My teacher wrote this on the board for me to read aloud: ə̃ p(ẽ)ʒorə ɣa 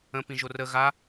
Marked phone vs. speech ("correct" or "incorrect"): incorrect